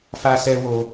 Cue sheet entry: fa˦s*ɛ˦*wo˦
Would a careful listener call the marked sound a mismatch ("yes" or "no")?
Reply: no